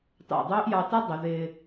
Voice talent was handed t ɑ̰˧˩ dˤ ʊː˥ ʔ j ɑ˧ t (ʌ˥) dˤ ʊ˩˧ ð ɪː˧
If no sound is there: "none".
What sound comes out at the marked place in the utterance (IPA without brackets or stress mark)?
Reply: ʌ˥